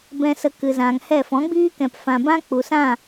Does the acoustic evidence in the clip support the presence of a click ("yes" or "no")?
no